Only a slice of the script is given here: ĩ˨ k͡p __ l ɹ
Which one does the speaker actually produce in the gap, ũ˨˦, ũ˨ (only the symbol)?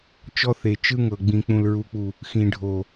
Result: ũ˨